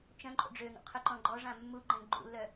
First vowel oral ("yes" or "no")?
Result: no